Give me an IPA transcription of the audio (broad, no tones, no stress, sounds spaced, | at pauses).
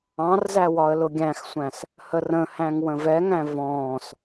ɑ̃ r z æ w ɒ ə̯ l ʊ ɡʲ æ̃ x sʷ æ̃ s | h ə r ə̃ h æ̃ ŋ w ə̃ v ɛ ŋ æ̃ v ɔ̃ː s